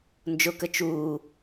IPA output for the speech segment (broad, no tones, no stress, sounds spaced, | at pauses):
n d͡ʒ ʊ k ə t͡ʃ uː